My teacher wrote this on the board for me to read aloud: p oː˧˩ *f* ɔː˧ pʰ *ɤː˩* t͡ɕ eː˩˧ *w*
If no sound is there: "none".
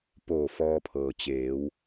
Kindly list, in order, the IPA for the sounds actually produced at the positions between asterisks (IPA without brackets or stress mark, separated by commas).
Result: f, ɤː˩, w